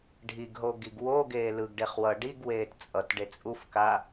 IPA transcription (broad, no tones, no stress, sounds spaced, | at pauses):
ɖʱ i ɡ ɦ o ɡ i ɡ w o ɡ eː l ɯ ɡ ɖ e χ w ʌ ɖ i ɡ w eː t t͡sʼ ʌ t ɖ e t͡sʼ u f k a